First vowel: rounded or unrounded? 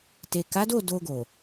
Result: unrounded